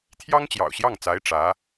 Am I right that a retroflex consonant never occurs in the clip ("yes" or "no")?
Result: no